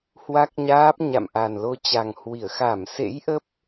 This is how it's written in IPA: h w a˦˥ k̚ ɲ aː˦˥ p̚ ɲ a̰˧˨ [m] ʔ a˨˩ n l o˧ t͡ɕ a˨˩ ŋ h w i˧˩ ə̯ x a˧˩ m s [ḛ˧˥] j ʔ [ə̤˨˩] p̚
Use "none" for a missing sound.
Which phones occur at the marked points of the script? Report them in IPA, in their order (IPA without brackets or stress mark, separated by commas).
m, ḛ˧˥, ə˦˥